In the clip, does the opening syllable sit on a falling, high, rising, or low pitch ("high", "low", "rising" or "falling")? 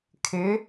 rising